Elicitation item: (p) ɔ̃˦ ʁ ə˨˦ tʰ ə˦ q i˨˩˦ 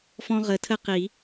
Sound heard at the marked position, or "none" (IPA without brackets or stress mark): f